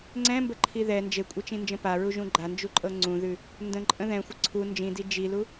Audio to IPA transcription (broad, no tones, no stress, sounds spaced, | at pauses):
ŋ͡ǀ ɛ̃ m b ə ǃʰ i ð ɛ n d͡ʒ e kʷʼ e t͡ʃ ĩ n d͡ʒ ə̃ p a ɹ u ʒ ũ ɡ͡ǃ a n d͡ʒ u ǃʼ ɤ ŋ͡ǀ ũ ð ʉ | n d ə̃ ǃʼ ə̃ ð ɛ̃ xʷ ə ǀʰ u n d͡ʒ ĩ d i d͡ʒ i l u